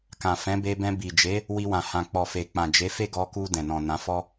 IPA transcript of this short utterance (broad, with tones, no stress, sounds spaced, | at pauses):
k ã˨ f ɛ̃˨˦ b e˧ b ɛ̃˧ b i˨ d͡ʒ e˨˦ | w i˧ w ã˨ h ã˨ k͡p ɔ˨ f e˨ k͡p ã˨ d͡ʒ e˨˦ f e˦˨ ɡ ɔ˧ k u˧ d ɛ̃˨ n ɔ̃˨ n ã˨˦ f ɔ˦